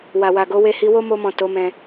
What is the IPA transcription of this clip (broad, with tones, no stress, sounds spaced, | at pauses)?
w a˨ w a˨ ɡ o˨˦ w e˧ h i˧ w o˦ m o˧ m ɔ̃˨ t o˨˦ m ɛ̃˧